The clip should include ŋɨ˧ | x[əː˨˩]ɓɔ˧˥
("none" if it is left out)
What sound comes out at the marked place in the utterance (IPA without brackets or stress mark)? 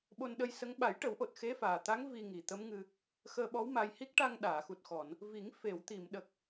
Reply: əː˧